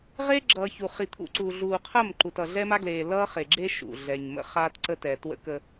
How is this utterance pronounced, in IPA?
ʁ e˦ ɡ͡ǁ ʌː˨ ç u˨ χ i˨ t̪ʰ ṵ˨ ǀ uː˨ ɮ uː˨ qʰ ɐ˦˨ m ǃ u˨ t ʌ˨ ɮ ɛ˦ m a˦ ɡ l eː˨ l ʌː˦ χ e˨ ɡ͡ǁ e˦ ʃ ṵ˨ ɮ ɛ˨ ɲ m ə̰˦ χ a˦ t ǀ ə˦ t ɛ˨ t w ə̰˦ k ə˦

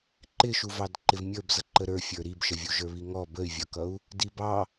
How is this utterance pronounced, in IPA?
ǃ ɪ ʃ u v ɑ d ǃ ɪ v mʲ ə˞ b z ʌ ǃ ə ɾ ə˞ fʲ ə˞ ɾ i b ʃ ə vʲ u ʒ ə˞ β i ŋ ɔ b ə y̯ vʲ ʌ k ʌ u̯ | d i b ɑ

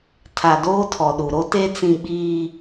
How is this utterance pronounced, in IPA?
tʰ a˨ d o˦ tʰ ɔ˨ ɗ u˨ ɾ o˦ t e˦ t͡s ĩ˦ ɓ iː˦

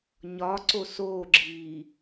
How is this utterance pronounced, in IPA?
ɲ ɒ ǀ o s oː ɡ͡ǁ iː

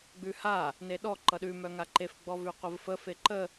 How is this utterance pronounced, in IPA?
ɡ͡b ʉ h a | n e ɗ ɔ ǃ ʌ ɗ ʉ m œ ŋ a ǃ e f ɡ͡b ɔ v ʉ qʷ ə v f ə f e ǃ ə

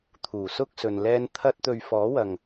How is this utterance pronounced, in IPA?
t̪ʰ uː˨˩ s ʊ˥ k̚ s ɵ˨ n l ɛː˧ n t̪ʰ ɐ˧ t̚ t̪ ɵ˨ ɥ f ɔː˨˥ w ɐ˨ ŋ

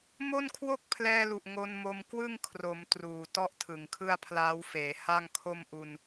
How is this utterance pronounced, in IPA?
m o˥˩ n kʰ w o˥˩ k̚ pʰ l ɛː˧ l u˨˩ ʔ ŋ o˧ n m o˧ m k w ɯ˥˩ ŋ kʰ r o˩˦ m t r uː˨˩ t ɔ˥˩ ʔ tʰ ɯ˨˩ ŋ kʰ ɯ˥˩ a̯ pʰ l aː˦˥ w f eː˩˦ h a˥˩ ŋ kʰ o˥˩ m ʔ u˧ n

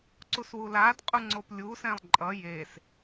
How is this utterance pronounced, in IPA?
ǀ u s w u l a d qʼ u ŋ͡ǀ o p lʲ u s ɛ̃ lˠ ǃʼ ʌ j e s

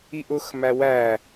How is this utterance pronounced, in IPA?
i ʔ ʊ x m æ w æ

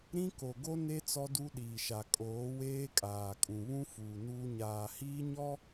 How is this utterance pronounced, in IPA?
ɾ ĩ˦ k o˨ ɡ o˦ n e˦ t͡s ɔ˦ d u˦ ɗ iː˨ ʃ a˨ kʼ oː˨˦ w eː˦ kʼ aː˨ kʼ ũ˨ β ũ˦ f uː˨ n uː˦ ɲ aː˨ h iː˦ ɲ ɔ˦

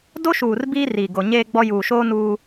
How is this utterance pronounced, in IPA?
d o˦ ʃ uː˨ r b iː˦ r iː˨ ɡ o˨ ɲ eː˦ ɡ͡b ɔ˦ j uː˨ ʃ oː˦ n uː˦

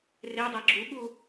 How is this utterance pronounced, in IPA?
r e dˤ æ ɡ͡ǁ u ɠ u

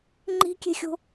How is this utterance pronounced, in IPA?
ŋ͡ǃ i̤ kʲ e̤ xʲ o̤

